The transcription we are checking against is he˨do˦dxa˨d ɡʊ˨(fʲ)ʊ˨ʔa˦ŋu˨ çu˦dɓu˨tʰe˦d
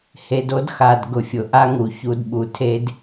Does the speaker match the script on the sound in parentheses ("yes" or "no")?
yes